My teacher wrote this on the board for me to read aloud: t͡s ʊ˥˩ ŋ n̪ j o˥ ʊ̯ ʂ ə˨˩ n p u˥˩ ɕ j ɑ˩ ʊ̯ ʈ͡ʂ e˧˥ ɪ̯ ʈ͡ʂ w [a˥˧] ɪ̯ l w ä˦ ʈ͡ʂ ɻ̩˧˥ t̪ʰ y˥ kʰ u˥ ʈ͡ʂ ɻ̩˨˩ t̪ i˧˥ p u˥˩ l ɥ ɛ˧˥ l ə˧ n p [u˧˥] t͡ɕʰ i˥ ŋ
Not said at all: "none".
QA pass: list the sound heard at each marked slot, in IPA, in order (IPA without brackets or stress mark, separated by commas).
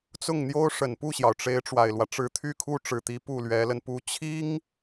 a˨˩, u˧˥